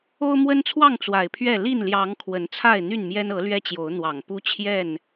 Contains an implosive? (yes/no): no